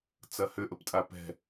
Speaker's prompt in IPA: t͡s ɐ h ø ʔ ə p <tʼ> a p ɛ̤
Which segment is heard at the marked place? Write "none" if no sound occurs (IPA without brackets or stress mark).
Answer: tʼ